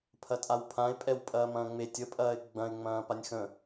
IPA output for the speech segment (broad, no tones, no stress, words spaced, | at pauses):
pʰɐtʼawpʰãɪ̯pʼɛw pʼɐːmɐ̃ːŋ͡metʲ əpʼɐːɪ̯ ɡ͡bɐ̃ɪ̯ ŋ͡mɐ̃ːpanʲxə̃